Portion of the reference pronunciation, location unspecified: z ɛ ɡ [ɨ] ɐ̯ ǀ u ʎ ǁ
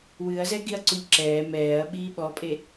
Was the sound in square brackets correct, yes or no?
no